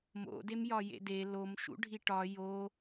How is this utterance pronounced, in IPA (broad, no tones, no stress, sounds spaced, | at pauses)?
m o̰ d e m j ɒ j ḛ d e l o m ʃ ṵ ɖʱ i ʈ ɒ j o